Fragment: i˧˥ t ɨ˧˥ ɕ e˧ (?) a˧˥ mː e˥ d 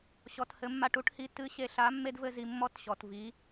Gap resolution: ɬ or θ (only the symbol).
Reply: ɬ